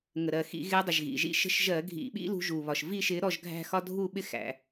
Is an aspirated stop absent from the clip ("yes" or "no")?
yes